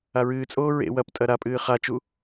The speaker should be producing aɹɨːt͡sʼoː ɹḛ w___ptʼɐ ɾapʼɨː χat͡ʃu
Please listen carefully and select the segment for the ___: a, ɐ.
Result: ɐ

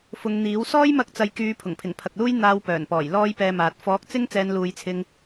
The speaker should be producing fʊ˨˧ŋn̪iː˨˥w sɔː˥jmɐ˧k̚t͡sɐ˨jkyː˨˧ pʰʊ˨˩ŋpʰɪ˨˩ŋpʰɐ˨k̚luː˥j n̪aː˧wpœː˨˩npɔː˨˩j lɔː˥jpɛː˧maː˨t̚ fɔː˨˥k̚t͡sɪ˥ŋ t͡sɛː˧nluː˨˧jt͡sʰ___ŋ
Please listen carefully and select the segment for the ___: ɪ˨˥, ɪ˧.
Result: ɪ˧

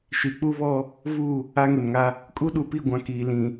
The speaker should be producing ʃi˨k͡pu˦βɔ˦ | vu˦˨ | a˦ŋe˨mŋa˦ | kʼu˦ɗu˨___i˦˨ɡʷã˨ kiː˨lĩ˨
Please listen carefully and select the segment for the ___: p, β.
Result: p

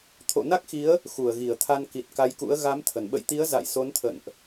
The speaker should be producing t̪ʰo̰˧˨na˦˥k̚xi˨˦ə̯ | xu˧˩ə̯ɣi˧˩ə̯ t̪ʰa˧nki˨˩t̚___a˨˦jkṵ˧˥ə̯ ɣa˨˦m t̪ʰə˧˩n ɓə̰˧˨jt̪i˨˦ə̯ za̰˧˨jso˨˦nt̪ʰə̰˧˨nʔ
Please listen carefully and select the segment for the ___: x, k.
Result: k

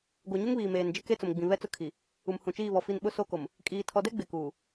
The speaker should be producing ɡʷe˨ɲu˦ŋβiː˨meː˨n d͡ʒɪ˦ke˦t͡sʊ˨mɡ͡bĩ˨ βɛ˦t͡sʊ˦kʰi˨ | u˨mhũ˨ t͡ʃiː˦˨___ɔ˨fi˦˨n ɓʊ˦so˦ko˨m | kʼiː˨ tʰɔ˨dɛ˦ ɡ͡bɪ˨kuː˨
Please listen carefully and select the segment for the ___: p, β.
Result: β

